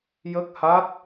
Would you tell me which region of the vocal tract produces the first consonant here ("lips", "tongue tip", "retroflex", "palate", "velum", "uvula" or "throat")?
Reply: palate